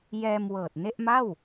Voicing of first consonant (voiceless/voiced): voiced